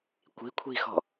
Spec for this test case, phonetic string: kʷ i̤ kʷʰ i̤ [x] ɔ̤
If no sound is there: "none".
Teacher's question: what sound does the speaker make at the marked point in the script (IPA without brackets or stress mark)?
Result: x